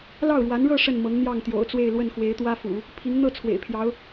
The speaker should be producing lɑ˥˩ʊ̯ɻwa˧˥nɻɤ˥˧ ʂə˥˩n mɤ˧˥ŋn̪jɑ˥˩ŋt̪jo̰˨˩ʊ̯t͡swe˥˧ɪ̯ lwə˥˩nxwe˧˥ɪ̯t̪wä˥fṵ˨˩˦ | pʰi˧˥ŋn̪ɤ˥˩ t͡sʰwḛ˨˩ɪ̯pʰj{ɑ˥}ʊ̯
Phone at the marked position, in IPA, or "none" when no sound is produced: ɑ˧˥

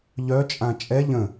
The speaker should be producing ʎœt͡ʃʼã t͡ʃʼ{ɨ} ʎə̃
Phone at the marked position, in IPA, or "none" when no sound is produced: ɛ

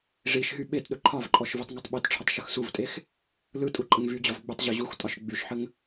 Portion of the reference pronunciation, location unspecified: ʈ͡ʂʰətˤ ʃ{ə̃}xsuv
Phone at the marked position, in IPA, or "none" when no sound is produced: ə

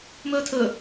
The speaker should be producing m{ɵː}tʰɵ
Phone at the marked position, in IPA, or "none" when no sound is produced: ɵː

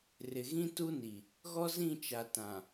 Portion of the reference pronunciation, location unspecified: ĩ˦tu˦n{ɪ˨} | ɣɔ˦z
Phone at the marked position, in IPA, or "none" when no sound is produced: i˨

